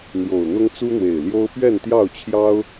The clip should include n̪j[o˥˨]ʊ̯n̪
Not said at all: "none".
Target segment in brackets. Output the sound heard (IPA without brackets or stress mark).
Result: o˨˩